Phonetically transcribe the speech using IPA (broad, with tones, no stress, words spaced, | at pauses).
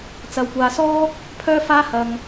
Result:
t͡sɐ˧wkʷaː˧sɔː˥ | pʰœː˥faː˥hɐ˧ŋ